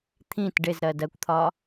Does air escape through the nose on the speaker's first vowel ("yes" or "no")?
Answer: yes